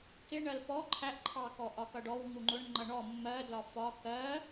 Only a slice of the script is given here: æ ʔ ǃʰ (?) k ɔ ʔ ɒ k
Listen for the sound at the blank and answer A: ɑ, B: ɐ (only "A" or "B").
A